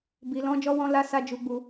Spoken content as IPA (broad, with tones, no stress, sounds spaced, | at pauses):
b i˨ l ɔ̃˧ d͡ʒ ɔ˧ w ɔ̃˧ l a˦ s a˦ d͡ʒ u˧ ɡ͡b u˧